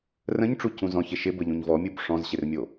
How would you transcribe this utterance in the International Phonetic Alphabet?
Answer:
r ə̃ ɲ ʈ͡ʂ u c ũ z ɔ̃ ç ɪ ʃ ɪ b ə ʎ ũ ɲ v ɔ mʲ u b ʂ ɔ̃ z ɕ ɪ r mʲ o

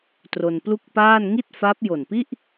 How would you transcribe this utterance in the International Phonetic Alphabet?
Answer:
t r o˧ n p l u˥˩ k̚ p aː˥˩ n ŋ i˥˩ t̚ f a˦˥ p̚ j o˨˩ n p i˥˩ ʔ

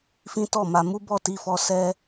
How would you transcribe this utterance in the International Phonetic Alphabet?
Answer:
f ĩ˦ t ɔ˦˨ m a˧ m u˦ b ɔ˦˨ t i˧ f ɔ˧ s ɛ˧

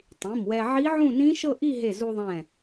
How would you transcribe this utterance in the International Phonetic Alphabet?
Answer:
tˤ ĩ˩˧˩ m w ɛ˧ ʕ i˦˥ ʕ ũ˥˧ n ĩ˦˥ ʃ ɤ˥˧ ʔ i˥˧ ɦ e˧˩ z u˧ ðˤ ɛ̃˧˩

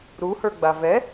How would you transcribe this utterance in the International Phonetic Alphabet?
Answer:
ɾ u h ə˞ ɡ͡b a v ɛ

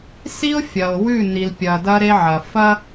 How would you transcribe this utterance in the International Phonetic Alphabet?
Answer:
s i˦ o̯ fʲ ɐ˨ o̯ w ʉ˦˨ n i˨ l pʲ ɐ˨ d ɐ˦ ɾ e˦ ʕ ɐ˨ f ɐ˦

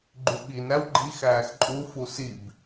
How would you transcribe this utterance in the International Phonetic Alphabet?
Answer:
ɡ͡ǃ y ɓ i n ɾ æ w ɡ͡ǃ i x æː x ǃʼ u f u s i b

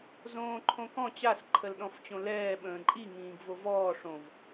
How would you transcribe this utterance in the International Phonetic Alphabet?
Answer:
z õː ǃʰ õ k ɔ̃ t͡ɕ a s ǃʰ ə l ɗ ɔ̃ f t͡ɕ õ l ɛː ɓ ə̃ː ǃʼ i ŋ ĩː ɡ v o v ɔː ʂ õ v

